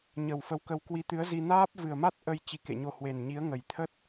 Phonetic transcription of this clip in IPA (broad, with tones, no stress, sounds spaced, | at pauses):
ɲ ə˨˩ w f ə˨˦ w k ə˧ w k w i˧ t̪ ɨ˨˦ ə̯ z i˧ n aː˦˥ p̚ v ɨ˨˩ ə̯ m a˦˥ t̚ ʔ ə˧ j t͡ɕ i˨˦ k ḛ˧˨ ɲ o˧ h w e˨˩ n ɲ i˨˦ ə̯ ŋ ə˨˩ j t̪ʰ ə˦˥ t̚